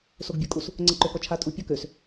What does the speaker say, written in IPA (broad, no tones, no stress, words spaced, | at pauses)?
soɡbʲɔkʼus | ŋ͡ǀəǃøkɔt͡ʃʰa tʼu pʲɔkøs